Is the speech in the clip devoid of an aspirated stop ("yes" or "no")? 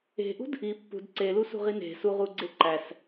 yes